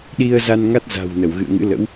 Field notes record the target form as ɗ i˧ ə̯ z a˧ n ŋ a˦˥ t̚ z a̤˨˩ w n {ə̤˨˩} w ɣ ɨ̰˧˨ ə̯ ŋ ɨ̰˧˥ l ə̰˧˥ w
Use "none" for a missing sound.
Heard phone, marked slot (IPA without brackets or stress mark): ə˧˩